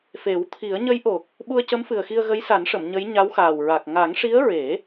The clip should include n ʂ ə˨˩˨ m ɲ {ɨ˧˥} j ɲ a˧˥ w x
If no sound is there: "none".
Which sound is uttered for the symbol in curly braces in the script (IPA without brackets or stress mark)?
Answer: ə˧˥